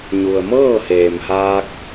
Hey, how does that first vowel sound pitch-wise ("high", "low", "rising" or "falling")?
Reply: low